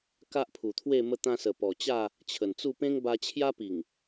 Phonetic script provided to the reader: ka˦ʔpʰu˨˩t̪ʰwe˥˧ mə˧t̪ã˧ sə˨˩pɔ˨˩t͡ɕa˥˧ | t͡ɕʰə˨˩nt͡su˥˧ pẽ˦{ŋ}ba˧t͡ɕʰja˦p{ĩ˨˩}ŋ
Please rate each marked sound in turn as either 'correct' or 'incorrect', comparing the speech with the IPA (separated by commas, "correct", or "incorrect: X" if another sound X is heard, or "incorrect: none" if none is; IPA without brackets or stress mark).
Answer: correct, incorrect: i˨˩